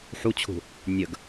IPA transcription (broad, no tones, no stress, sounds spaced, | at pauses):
ħ u t͡ɕʰ ṳ | nʲ ə ɡ